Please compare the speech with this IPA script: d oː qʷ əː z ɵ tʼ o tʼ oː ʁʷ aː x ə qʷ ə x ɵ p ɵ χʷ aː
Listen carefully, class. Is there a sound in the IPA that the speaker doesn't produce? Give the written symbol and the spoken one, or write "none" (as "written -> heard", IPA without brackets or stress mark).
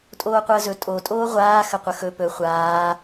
d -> tʼ